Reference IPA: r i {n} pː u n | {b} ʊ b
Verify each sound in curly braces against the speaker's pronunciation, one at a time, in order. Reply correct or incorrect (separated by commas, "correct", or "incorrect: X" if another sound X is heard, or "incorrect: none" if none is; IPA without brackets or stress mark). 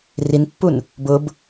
correct, correct